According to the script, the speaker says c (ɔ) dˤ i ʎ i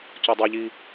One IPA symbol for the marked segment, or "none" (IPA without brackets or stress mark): ɔ